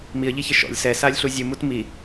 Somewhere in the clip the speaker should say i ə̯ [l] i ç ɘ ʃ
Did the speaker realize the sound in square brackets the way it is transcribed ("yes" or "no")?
no